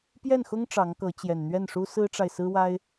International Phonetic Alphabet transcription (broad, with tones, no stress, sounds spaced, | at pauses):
p j ɛ˥˩ n x ʊ˥ ŋ ʈ͡ʂ ɑ˧˥ ŋ k ɤ˧˥ t͡ɕ j ɛ˨˩ n n̪ ɥ ɛ˥˩ n ʂ u˥ s ɹ̩˥ ʈ͡ʂ a˨ ɪ̯ s ɹ̩˥ w a˥ ɪ̯